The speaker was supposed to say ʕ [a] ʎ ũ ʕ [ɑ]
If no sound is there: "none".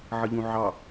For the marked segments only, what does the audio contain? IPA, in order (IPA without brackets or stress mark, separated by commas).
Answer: ə, ɑ